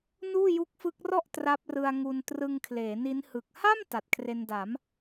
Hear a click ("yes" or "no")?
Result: no